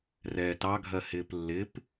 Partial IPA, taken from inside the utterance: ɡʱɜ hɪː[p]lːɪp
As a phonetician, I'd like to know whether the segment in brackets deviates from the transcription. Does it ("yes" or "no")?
no